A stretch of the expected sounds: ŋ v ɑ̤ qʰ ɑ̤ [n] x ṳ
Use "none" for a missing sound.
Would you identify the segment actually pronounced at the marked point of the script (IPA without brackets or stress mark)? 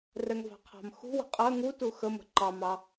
m